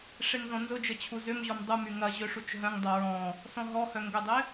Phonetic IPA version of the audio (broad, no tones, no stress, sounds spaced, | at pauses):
ʂ e ŋ z ɔ̃ n z ʊ d͡ʒ ə t͡ɕʰ u z ʏ m ʑ ɔ m dˤ u m y ŋ ɐ ʑ ø ʂ u t͡ʃ ɦ œ̃ ŋ dˤ o ɹ ɔ̃ | s ɔ̃ ɦ ɔ h œ ŋ ɡ ʊ dˤ ɪ